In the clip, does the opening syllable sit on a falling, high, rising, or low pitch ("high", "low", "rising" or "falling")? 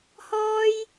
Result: high